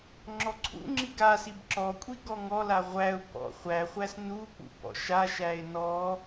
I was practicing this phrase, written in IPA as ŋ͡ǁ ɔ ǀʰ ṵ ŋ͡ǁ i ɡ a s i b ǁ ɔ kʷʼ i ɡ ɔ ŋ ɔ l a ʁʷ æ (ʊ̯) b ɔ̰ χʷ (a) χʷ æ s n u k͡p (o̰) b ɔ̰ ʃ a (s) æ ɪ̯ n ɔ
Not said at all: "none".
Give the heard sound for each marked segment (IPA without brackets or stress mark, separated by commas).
ʊ̯, æ, ṵ, ʃ